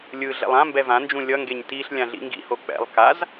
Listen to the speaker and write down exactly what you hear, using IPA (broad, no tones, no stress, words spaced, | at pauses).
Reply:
lʲɯ ɮɛ̰lˠãmbɛ vãnd͡ʒũ lʲʌŋɡeɲ tiɬ lʲãɮḭŋɡḭho k͡pɛ̰lˠ kaz